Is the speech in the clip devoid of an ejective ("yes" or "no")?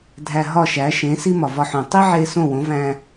yes